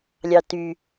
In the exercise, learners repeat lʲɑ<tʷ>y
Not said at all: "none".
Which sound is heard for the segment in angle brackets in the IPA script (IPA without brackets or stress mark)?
t